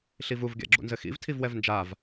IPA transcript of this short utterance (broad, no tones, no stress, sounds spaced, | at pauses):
ɬ i v u v ɡʲ a̰ ɡ͡ǁ ṵ n z ɘ x ḭ v tʰ i v w ɛ v n d͡ʒ a v